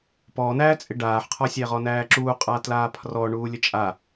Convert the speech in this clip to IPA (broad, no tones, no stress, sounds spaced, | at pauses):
p ɔ n æ t͡sʼ ɪ ɖ aː ħ qʰ ɒ sʲ æ ʁ ɔ n æː ǁ uː qʼ a t l aː pʰ r ɔ ɳ uː lʲ ə t͡ʃʼ a